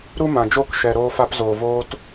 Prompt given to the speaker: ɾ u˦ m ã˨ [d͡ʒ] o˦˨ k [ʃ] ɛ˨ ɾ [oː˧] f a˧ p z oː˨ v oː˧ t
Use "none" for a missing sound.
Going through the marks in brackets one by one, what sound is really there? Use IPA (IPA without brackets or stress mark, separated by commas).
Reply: d͡ʒ, ʃ, oː˧